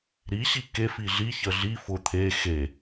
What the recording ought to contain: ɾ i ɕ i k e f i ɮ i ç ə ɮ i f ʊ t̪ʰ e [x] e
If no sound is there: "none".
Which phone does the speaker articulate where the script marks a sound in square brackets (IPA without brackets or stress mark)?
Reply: x